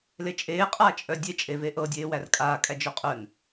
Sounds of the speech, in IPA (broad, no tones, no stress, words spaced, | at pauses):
let͡ʃʼeː qʼaːt͡ʃʼœdʲe t͡ʃʼeveʔɤ dʲeːwærkʼaː kʼæd͡ʒœqʼœn